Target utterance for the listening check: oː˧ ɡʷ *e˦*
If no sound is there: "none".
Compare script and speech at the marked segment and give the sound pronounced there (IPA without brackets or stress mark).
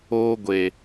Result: e˨